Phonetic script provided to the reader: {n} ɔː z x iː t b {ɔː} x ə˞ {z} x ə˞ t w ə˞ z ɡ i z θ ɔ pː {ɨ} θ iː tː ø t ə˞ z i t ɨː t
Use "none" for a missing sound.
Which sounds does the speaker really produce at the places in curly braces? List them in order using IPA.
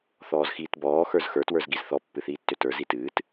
θ, ɔː, z, ɨ

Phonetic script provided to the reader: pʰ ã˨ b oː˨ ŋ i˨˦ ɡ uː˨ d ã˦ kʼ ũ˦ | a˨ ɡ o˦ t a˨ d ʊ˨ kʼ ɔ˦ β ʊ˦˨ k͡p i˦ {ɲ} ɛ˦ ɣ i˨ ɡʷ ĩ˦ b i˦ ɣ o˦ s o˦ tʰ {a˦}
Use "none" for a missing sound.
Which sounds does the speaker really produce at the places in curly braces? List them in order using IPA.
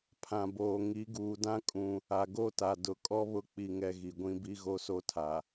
ŋ, a˨

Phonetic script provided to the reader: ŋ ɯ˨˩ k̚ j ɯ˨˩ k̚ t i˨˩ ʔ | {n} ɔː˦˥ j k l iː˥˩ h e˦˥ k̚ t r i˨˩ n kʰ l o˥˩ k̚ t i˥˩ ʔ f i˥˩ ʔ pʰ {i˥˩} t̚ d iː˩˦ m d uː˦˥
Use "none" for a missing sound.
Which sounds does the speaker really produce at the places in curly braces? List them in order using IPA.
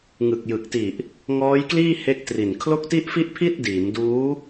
ŋ, i˥˩

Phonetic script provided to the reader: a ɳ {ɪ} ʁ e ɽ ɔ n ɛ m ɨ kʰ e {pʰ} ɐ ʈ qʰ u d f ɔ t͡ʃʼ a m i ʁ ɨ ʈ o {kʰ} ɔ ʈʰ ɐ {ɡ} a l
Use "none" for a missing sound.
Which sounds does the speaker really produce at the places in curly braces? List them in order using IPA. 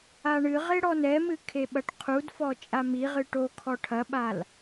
ɨ, ɓ, kʰ, ɓ

